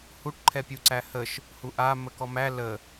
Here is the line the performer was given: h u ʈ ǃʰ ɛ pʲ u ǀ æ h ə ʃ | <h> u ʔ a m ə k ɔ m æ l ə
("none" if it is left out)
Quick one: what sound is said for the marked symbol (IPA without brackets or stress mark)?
h